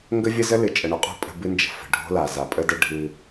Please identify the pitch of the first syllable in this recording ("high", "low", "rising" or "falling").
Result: high